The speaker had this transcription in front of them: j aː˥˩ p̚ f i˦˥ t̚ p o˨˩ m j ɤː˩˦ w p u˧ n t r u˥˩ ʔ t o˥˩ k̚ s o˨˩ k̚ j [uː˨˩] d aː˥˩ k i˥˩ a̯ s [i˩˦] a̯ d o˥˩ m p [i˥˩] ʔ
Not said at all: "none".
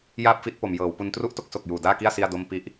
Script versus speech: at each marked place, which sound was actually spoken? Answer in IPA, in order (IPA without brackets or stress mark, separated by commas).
uː˨˩, i˥˩, i˦˥